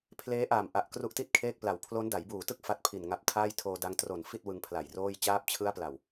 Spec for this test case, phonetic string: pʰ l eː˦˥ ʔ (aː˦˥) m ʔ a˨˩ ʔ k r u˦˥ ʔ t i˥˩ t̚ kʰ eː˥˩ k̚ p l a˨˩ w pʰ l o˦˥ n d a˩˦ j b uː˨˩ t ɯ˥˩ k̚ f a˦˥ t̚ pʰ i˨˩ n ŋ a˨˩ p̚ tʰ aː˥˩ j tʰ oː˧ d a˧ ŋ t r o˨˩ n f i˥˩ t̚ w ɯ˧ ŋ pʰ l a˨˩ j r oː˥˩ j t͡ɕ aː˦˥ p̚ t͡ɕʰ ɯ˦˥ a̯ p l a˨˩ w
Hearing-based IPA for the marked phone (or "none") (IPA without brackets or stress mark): aː˨˩